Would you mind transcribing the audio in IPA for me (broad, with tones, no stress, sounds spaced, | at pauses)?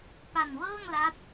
p a˨˩ n w ɤː˥˩ ŋ l a˦˥ t̚